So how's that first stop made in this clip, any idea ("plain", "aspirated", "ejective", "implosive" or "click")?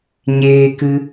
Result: plain